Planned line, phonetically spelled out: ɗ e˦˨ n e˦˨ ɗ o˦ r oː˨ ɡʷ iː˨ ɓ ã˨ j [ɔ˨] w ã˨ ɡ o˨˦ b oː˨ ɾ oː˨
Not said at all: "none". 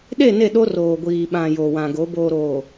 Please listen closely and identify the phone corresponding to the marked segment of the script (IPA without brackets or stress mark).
o˨